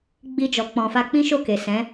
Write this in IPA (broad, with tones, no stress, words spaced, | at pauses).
ɡ͡bi˧d͡ʒɔ˨ k͡pɔ̃˨fa˧k͡pĩ˦ʃo˦˨ ke˨ sɛ̃˨˦